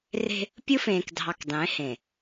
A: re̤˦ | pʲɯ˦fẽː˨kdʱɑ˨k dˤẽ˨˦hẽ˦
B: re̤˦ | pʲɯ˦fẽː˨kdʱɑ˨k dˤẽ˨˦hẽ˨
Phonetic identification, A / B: B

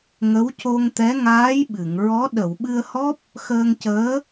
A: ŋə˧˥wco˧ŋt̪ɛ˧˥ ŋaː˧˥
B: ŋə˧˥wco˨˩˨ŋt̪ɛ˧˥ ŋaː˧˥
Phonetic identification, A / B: A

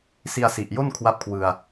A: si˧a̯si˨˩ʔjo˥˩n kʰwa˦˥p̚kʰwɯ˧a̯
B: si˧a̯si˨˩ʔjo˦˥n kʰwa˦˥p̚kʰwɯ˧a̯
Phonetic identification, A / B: A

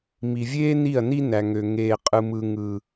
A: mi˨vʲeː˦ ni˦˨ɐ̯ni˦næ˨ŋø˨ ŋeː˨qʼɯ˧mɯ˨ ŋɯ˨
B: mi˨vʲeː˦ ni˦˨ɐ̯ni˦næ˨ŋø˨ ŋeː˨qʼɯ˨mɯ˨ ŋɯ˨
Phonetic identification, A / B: B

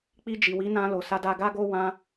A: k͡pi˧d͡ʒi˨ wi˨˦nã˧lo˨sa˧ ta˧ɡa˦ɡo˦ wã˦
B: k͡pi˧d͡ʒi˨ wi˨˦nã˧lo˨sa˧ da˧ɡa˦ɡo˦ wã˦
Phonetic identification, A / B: B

